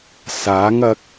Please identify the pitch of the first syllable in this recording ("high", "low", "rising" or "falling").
rising